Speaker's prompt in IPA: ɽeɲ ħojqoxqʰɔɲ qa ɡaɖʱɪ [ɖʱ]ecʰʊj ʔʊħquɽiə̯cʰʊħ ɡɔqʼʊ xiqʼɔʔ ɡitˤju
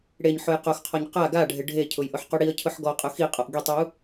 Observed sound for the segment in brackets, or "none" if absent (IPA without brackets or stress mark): ɖʱ